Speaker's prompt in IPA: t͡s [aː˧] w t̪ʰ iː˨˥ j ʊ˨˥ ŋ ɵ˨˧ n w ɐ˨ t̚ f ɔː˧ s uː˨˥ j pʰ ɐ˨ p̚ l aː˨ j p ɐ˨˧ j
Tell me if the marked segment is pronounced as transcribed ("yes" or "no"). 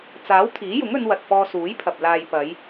no